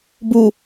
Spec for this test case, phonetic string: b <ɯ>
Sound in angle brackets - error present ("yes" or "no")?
yes